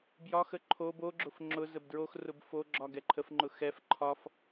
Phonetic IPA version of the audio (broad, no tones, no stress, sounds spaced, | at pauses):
b j ɒ x ə ǃʰ o b o ɡ͡ǁ ʊ f ŋ͡ǁ ʊ z ə b d ɹ o x r ʊ b f o ɡ͡ǁ ɒ ɡ ɛ ǃʰ ə f ŋ͡ǃ ʊ x ɛ f ǃʰ ɒ f